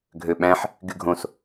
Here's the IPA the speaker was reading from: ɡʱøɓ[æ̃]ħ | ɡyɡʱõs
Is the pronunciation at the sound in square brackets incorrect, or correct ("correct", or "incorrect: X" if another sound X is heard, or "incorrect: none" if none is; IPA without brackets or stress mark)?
correct